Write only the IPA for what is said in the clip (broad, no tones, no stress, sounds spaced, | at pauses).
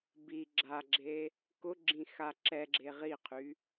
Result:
b i ɡ͡ǁ a ɡ͡ǁ e | k ʊ ɡ͡ǁ ĩ x a ǁ ɛ ɡ͡ǁ e ʁ i qʰ y